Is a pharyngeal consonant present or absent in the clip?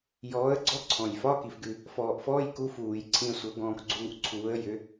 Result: absent